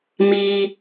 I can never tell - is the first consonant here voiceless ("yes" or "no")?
no